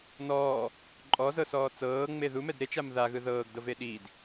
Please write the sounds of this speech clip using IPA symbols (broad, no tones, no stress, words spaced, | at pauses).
nɔː | ǃʼɔzɤsɔː t͡sɤːŋ͡me ðumɛd ɾet͡ʃam ðaɣɯ ðɤːɡdɤve ɗid